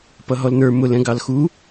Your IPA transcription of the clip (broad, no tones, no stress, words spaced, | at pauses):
pʌɦɔlnə˞ mʊl ɛ̃ɡɑlxu